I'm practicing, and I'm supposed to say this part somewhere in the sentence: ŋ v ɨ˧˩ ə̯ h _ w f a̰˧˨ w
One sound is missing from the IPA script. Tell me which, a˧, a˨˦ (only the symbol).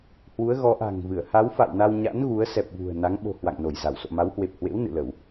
a˨˦